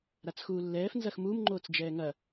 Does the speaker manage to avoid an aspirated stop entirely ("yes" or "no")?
yes